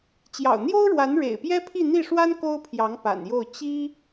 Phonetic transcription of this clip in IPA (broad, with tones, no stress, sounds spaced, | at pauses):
t͡ɕ j ɑ̰˨˩ ʊ̯ n̪ j o˥ ʊ̯ ɻ w a˧˥ n ɻ ḛ˨˩ ɪ̯ p j ɛ˥ pʰ i˥˧ n̪ i˥˩ ʂ w a˥ n k o˥ ʊ̯ pʰ j ɑ˧˥ ŋ p a̰˨˩ n j o˥˩ ʊ̯ t͡ɕ i˥